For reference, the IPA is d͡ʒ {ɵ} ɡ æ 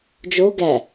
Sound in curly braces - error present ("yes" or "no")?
yes